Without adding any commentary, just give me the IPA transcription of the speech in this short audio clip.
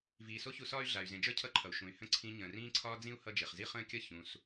v iː˨ s o˥ ç u˦ s ɒː˥ y̯ ɮ a˩ y̯ z ẽ˨ d͡ʒ ə˞˥ cʰ ʌ˦ ǃʰ ʌ˩ u̯ ʃ ũ˩ y̯ h ə̃˥ ǀʰ ĩ˦ ɲ ə̃ː˩ r ĩː˦ ǀʰ ɒː˦ d͡z ĩ˥ u̯ h ʌ˦ d͡ʒ e˩ χ z i˥ χ ə̃ː˥ kʲ ʌ˥ ç ũ˨ s

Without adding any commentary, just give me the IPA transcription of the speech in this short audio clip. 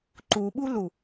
ǃ u ɓ u l u

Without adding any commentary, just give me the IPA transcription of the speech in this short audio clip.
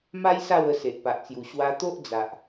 m a˦ j s a˥˧ w ə˧ s e˨ ʔ p a˨ ʔ t͡s j u˨˩ ɕ w a˧ t̪ o˦ ʔ d͡z a˨ ʔ

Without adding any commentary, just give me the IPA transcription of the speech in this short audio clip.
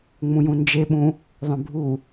ŋ͡m ũ j ũ n d͡ʒ e ɓ ũ | ðˤ œ̃ bʱ u

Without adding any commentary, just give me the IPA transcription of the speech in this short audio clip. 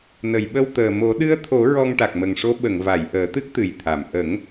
n ə˨˩˨ j ɓ ə˧ w t̪ əː˨˩ m o˨˩˦ ɗ ɨ˧˥ ə̯ t̪ʰ o˨˩˦ ɹ ɔ˧ ŋ ʈ a˨˩ k̚ m ə˨˩ ŋ ʂ o˧˥ ɓ ə˨˩˨ ŋ v a˨˩˨ j ʔ əː˨˩˦ t̪ ɨ˦˥ k̚ t̪ ɨ˨˩ j t̪ʰ a˨˩˨ m ʔ ə˨˩˦ ŋ

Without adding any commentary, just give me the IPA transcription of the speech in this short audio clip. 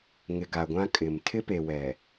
ŋ ɪ˨ ɡ a˨ ɡʷ ã˦ kʼ ɪ˨ m tʰ ɪ˦ p e˨ w ɛ˨

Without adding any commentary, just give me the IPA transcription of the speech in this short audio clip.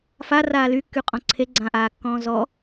f a r aː l y kː y qʼ ɔ̃ ǀʰ e ɡ͡ǀ ã ʔ aː kː ɔ̃ː z ɔ

